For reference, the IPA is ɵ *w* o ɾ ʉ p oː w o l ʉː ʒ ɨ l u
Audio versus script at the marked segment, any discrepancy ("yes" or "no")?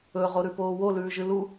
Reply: yes